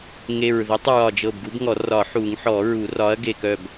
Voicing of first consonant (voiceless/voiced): voiced